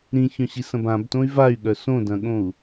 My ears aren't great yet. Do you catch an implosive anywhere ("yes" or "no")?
yes